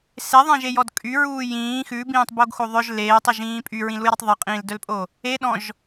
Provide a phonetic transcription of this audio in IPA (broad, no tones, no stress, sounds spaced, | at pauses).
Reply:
s e ðˤ ɛ̃ ʒ e j ɔ d kʼ y ɹ uː j ĩː x ʉ b ĩː tˤ b o ɡ x o ðˤ œ ʒ l eː tˤ i ʒ ĩː pʼ y ɹ ĩ l u j ɾ i tˤ ðˤ i qʼ ĩː l d œ l pʼ o | e ɗ ɔ̃ ʒ